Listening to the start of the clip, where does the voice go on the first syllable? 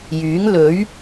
rising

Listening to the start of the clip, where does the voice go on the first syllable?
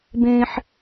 high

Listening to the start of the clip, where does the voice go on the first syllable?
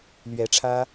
rising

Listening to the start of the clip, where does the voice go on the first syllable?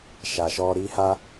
low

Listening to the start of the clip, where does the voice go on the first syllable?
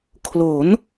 rising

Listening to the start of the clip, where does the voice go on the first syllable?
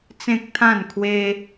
high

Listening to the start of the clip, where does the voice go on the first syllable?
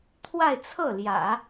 falling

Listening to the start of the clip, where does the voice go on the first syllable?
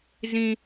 high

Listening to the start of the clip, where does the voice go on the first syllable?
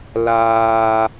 high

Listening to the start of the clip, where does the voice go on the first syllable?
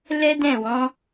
high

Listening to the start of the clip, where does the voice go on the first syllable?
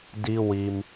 high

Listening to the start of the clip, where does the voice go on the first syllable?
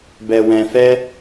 low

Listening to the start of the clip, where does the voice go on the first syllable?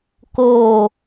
falling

